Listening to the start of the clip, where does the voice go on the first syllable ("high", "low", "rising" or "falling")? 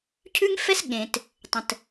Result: high